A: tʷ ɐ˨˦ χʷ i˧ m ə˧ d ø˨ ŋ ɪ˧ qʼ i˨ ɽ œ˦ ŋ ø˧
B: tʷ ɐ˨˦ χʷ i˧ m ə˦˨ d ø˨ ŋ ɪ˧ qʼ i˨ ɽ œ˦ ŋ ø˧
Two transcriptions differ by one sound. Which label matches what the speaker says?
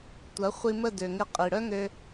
B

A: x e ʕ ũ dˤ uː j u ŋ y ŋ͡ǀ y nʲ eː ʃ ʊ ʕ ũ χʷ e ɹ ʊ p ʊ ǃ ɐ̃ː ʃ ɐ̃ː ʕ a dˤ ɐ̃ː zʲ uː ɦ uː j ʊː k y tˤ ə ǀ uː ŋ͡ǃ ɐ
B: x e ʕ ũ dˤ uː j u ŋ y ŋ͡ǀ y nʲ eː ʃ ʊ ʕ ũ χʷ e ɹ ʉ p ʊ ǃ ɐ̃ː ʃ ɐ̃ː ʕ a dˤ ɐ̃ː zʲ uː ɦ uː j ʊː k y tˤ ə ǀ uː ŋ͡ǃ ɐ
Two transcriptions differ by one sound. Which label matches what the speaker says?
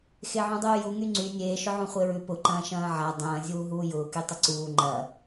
B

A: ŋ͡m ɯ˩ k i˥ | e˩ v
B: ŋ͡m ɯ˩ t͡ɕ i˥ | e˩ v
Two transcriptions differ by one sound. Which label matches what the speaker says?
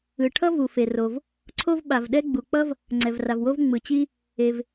B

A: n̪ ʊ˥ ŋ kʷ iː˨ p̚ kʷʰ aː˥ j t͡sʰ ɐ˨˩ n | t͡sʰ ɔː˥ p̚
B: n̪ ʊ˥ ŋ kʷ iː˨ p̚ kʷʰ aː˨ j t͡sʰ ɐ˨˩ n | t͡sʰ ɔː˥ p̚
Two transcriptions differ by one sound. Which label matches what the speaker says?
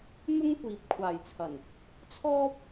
B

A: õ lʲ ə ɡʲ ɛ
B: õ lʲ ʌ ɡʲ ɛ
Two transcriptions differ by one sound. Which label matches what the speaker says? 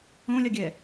B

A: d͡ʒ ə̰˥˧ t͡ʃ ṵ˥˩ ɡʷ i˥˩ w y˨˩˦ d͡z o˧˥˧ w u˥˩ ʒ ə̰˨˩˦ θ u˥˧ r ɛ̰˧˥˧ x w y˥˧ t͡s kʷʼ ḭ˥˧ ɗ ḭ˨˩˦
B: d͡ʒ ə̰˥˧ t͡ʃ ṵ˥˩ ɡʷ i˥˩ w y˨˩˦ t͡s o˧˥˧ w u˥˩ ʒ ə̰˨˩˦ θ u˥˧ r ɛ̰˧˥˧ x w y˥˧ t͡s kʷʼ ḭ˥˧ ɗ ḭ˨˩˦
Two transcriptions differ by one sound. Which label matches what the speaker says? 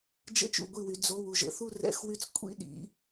A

